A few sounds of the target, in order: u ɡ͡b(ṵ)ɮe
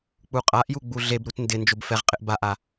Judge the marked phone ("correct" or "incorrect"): incorrect